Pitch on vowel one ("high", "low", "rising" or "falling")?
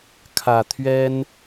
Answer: low